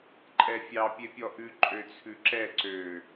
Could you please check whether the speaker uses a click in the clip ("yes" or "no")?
yes